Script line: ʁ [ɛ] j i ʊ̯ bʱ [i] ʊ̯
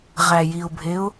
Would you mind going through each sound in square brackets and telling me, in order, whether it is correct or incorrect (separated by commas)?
incorrect, incorrect